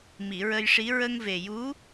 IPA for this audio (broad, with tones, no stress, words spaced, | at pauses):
mi˨˩˨ɹə˧jʂi˧˥ ɹə˧ŋve˨˩ju˧˥